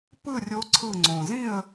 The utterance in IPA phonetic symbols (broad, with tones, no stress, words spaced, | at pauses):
pɯ˥˨rʲo˧˥ǀʰɯ˧˩ ŋ͡ǀõ˩zĩ˥˨ə̯